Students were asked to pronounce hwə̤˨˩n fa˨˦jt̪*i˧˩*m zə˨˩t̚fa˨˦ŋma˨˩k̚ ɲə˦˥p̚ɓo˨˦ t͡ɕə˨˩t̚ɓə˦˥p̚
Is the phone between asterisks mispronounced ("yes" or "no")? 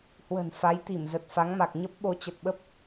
no